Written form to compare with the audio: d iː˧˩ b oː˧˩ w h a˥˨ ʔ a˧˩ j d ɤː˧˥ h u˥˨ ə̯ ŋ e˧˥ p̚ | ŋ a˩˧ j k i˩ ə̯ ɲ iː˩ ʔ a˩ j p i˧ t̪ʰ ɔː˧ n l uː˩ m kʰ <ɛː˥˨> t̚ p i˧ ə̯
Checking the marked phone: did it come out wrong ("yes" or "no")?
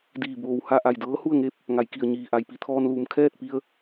no